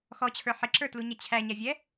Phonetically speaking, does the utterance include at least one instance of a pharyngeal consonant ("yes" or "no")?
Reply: yes